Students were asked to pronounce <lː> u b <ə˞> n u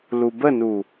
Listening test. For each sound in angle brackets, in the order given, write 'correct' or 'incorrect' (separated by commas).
incorrect, incorrect